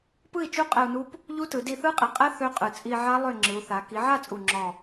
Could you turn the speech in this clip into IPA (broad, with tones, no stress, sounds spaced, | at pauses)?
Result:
p ɯ˥˨ i̯ t͡ʃ u˦˥ qʼ ɛ˧ u̯ n u˦˥ p | ʎ u˦˥ t ɯ˩˧ d i˧ θ ɯ˦˥ qʼ i˩˧ qʼ ɛ˦˥ θ ø˦˥ qʼ ɯ˨˩ t͡sʼ i˧ ʕ a˦˥ lˠ ø˥˨ ŋ͡ǁ ɯ˩˧ u̯ θ a˩˧ k i˩˧ ʕ a˥˨ t͡sʼ u˨˩ ŋ͡ǁ ɔ˨˩